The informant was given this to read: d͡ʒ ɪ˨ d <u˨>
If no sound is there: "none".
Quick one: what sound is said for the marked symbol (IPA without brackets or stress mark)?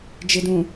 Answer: ũ˨